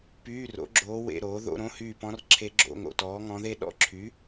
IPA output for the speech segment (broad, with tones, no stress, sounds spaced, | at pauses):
p yː˧˥˧ r o̰˩˥ ɡ͡ǁ oː˧˥ w ḛ˧˥˧ ɾ oː˩˥ ð o̰˧˥˧ ɾ õ˧˥˧ h yː˦˨ p ɔ̃˧˥ r ǁʰ e˧˥ ɡ͡ǁ o̰˧˥˧ ŋ o̰˨ t ɔː˩˥ ŋ ɔ̃˧˥ ð e˥ ɗ ɔ̰˦˨ ǁʰ y˩˥